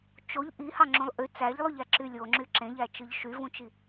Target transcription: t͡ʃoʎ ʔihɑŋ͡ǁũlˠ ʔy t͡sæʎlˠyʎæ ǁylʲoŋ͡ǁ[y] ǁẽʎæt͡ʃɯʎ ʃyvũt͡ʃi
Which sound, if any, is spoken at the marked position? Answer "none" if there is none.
y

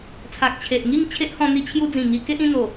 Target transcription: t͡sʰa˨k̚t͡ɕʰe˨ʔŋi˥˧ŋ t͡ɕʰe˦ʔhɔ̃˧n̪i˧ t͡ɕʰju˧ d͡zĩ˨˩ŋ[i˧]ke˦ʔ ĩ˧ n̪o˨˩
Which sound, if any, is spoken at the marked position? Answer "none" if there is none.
i˧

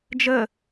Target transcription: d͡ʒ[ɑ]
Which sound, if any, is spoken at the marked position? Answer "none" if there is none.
ə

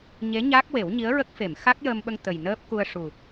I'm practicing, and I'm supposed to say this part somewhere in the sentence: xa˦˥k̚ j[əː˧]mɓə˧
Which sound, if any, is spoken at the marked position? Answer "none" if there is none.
əː˧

